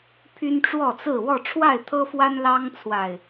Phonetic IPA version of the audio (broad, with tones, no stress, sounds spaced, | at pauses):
pʰ y˦ n ʈ͡ʂ w ɔ˥˨ t͡s ɹ̩˥˨ w ɔ˥˨ ʈ͡ʂʰ w a˥˨ ɪ̯ t̪ʰ ɤ˦ f w a˦ n l ɑ˦ ŋ t͡sʰ w a˨˩ ɪ̯